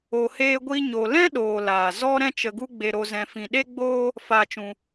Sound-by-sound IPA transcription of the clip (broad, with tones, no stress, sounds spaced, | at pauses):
o˧ h eː˦ ɡʷ i˦ ɲ o˧ l ɛ̃˦ ɗ oː˧ l aː˨ z ɔ˦ ɾ ɛ̃˦ t͡ʃ ə˧ ɡ u˦ ɡ͡b e˧ ɾ o˧ z ɛ̃˧ f ĩ˧ ɗ e˦ ɡ͡b oː˦ | f aː˧ t͡ʃ ũ˧